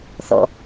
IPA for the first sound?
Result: θ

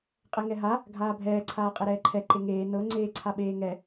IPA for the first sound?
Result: qʼ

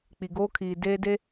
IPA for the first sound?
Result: k͡p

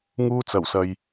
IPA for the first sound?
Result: ŋ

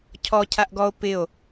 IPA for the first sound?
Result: cʰ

